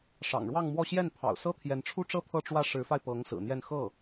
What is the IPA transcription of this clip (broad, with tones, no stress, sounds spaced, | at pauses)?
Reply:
ʂ ɑ̰˨˩ ŋ ɻ w ɑ˥˧ ŋ m w ɔ˥˧ ɕ j ɛ˥˩ n pʰ ɑ̰˨˩ ʊ̯ s ɤ˥ t̪ʰ j ɛ˧˥ n ʈ͡ʂʰ u˥ ʈ͡ʂ ɤ˥ t̪ʰ ɤ˥˧ ʈ͡ʂ w ä˥˩ ʂ ɻ̩˧˥ f a˧ ɪ̯ p ɤ˧˥ ŋ s ɹ̩˨˩ n̪ j ɛ˥˧ n x ɤ˥˩